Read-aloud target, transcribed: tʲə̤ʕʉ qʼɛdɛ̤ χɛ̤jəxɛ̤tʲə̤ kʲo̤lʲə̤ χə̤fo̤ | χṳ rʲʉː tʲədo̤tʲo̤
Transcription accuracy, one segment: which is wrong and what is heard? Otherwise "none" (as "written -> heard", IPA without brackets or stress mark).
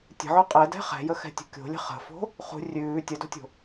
none